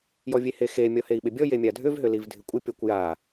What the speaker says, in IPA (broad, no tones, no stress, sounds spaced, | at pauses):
j ɔ vʲ e h e x e mʲ ɔ h e i̯ ɓ ɪ bʲ ɔ j e mʲ a dʱ ʏ v ɦ ʏ l i v dʱ ɪ kʷʼ ɪ pʲ ɔ kʷ j a